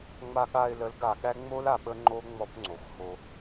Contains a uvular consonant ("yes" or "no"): no